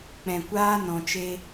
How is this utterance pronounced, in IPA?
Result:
k͡pɛ̃˨kʷaː˦ nɔ̃˨t͡ʃe˧

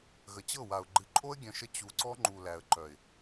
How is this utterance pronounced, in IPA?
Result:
ɣə˨t͡ɕɤ˦˨wa˨ʊ̯ ɡ͡ǃɨ˨ǃʼo˦ə̯ɡʲœ̃˨ʃə˧ t͡ɕu˨ǀɔ˦ ŋ͡ǃu˨læ˨ə̯ǃœ˨ɪ̯

